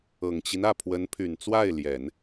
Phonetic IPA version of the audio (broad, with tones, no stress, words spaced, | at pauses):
ɤ˨˩ŋt͡ɕi˦n ä˥˩pʰwə˧˥npʰy˨˩nt͡swa˥˩ɪ̯ ljɛ˨˩˦n